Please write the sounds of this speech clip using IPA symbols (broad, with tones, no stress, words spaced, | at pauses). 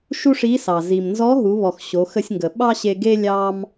ʃu˥ʂi˧˥sɑ˩ zi˩mnzɔ˧˥ɦu˩˧βɔ˩x ɕo˩˧xə˧sʲŋɡə˩ ɓɑ˥ɕe˧ɡe˥ lʲɑ˧m